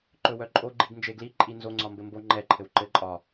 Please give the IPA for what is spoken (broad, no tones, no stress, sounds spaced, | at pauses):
ǃ ɵ w œ ǃʼ o ɡ͡ǃ i ɡ n d͡ʒ e ɡ l i ǃʼ i n z o ŋ͡ǀ ɒ m b ɘ m b o ŋ͡ǃ ɛ ǃʰ ɘ w ǃ ɘ ǃʼ ɒ